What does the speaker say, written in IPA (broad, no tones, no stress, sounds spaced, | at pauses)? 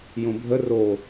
j õ bʱ ə r o